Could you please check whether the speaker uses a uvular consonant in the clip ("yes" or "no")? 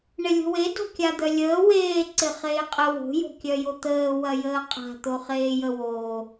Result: yes